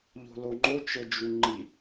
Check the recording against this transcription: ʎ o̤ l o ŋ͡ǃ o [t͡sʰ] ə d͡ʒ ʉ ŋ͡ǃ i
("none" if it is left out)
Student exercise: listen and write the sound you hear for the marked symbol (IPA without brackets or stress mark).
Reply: t͡ʃ